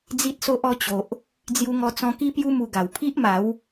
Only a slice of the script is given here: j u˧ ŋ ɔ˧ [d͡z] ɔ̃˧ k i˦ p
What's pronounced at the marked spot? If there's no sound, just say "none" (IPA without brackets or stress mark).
t͡s